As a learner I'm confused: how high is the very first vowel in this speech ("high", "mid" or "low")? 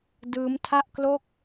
high